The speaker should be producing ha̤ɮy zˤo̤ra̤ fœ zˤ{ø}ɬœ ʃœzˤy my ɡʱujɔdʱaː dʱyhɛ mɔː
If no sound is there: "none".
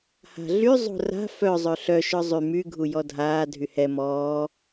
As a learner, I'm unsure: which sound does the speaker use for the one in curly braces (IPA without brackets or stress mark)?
ø